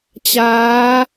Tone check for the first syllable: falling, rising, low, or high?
rising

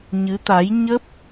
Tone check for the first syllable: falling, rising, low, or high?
rising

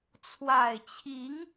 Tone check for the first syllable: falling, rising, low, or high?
low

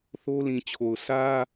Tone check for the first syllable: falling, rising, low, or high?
high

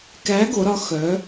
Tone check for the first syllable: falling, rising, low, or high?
rising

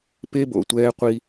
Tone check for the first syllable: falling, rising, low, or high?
high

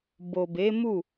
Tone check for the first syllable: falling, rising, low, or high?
low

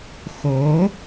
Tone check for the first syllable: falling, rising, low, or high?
rising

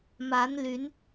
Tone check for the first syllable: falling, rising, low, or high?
rising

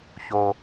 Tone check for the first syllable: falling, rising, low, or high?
low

